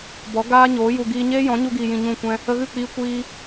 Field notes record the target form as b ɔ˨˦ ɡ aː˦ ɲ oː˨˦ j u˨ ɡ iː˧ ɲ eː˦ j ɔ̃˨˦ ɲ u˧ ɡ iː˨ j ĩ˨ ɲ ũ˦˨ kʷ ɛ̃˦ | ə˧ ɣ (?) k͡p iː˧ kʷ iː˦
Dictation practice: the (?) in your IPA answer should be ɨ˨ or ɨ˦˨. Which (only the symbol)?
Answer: ɨ˦˨